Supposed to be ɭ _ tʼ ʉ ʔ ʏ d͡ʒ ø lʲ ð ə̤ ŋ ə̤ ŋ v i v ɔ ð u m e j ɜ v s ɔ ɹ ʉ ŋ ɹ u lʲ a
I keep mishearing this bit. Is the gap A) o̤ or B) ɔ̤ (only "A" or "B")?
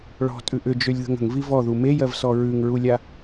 B